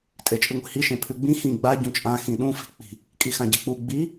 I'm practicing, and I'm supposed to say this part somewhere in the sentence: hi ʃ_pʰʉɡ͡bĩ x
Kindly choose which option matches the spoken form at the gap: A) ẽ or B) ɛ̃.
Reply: A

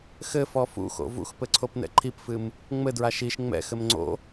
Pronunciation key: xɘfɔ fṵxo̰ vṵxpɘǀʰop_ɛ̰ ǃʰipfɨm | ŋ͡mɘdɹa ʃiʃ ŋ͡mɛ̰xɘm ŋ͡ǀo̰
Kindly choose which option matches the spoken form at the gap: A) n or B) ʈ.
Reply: A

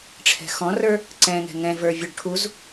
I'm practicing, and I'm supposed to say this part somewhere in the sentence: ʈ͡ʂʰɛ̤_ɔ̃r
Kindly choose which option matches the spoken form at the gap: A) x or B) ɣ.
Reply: A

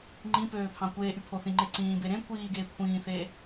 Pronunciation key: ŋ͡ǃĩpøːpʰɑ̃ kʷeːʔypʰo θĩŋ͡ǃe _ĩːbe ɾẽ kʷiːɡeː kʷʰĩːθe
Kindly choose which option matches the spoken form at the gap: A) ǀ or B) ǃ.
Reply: A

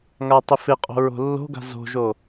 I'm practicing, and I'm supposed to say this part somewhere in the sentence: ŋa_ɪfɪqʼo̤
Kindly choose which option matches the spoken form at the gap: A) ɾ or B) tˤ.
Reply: B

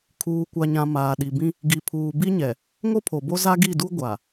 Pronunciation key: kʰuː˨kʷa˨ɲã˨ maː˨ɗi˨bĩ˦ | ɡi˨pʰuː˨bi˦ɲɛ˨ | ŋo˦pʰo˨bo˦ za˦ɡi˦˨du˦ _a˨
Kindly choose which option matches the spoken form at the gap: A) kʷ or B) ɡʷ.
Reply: B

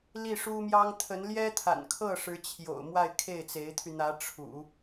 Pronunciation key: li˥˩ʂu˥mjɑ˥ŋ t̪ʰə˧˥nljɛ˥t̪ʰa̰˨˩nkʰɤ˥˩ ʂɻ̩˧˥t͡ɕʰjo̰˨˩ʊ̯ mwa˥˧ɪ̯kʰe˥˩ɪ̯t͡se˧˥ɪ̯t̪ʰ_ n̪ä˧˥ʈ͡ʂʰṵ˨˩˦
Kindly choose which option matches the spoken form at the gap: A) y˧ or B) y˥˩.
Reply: A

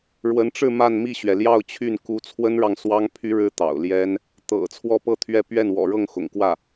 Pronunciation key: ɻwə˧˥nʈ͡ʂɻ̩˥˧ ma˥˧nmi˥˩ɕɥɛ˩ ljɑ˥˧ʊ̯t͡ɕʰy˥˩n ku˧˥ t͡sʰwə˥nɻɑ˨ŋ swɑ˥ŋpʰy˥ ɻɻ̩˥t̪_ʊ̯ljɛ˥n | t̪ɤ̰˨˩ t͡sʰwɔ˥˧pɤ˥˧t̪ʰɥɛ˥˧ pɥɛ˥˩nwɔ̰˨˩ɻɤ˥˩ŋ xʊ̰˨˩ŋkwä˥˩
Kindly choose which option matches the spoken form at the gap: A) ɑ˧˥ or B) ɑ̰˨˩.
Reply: B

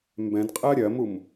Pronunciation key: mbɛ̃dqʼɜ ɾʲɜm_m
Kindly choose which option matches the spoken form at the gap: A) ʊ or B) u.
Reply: B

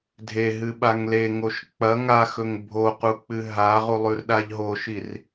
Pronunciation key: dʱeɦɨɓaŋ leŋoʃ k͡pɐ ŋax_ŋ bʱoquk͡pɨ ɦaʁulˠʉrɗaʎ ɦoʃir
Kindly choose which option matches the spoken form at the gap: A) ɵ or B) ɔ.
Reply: A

